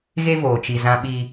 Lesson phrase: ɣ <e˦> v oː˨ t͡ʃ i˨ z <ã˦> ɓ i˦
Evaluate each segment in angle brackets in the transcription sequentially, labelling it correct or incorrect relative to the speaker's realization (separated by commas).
correct, correct